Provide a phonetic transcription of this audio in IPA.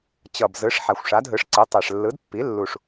t͡ɕʌ˨˩bzɯ˩˥ʂ ħa˨˩xʷʂa˩˥dɦɯ˩˥ʂ ǀɯ˩˥tˤɛ˨˩ʂ lːɯ˩˥d pːi˩˥lːu˨˩ʂ

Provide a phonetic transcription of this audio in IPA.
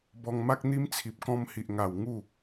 bɔ˧ŋma˦k̚n̪i˦mt͡sʰi˨p̚ kɔ̃˧mhi˨ʔŋa˨˩w ŋu˥˧

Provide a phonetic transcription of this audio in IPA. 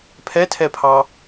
pʰɛtʰɛpʰɑ

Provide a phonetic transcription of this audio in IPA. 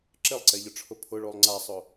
ǁɪlˠǀeʎʊʈ͡ʂʰʊ pʰʊɭolˠ ŋ͡ǀasˤʊ

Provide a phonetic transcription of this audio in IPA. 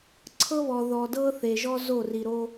ǀʰɤ˦βɔ˨ ðɔ˨dɤ˦θe˨ ʒɔ˦zo˦˨ri˨ɾo˦

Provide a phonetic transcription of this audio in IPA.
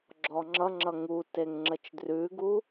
ɡ͡ǁɔŋ͡ǁʌŋ͡ǁʌ ŋuteŋ ŋ͡ǁət͡ʃdrʉɡu

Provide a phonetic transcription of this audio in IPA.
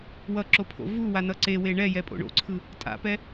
wʌǁopʰo̰ vuwanʌ ǀewe ɳɛjɛpʼo̰ ɳo̰ǀʰɯ | tʼa̰pɛ

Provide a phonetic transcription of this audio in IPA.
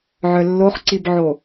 ʕœlːoχǀibʕo

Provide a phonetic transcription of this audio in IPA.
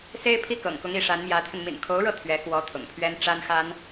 se˥ɪ̯pʰi˥kɤ̰˨˩ŋkʊ˧˥ŋ i˧˥ʂa˧˥nmjä˧˥t̪ʰə˧n mḭ˨˩nkʰo˧˥ʊ̯ɻɤ˥˩ t̪ʰɥɛ˧˥kwɔ˧˥ t̪ʰʊ̰˨˩ŋpʰɥɛ˥n ʈ͡ʂa˥nxa˥n

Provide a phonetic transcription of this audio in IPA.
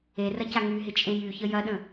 erɐca ŋyɦɪt͡ʃʼẽj yçə jɐɗə̃

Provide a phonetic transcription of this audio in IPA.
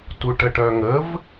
tuʈəʈœŋəv

